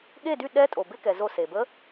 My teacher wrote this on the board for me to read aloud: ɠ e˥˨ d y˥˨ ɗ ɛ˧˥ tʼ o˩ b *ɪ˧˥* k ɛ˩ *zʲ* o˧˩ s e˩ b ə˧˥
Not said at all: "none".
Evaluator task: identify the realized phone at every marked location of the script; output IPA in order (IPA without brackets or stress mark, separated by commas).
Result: ɪ˧˥, z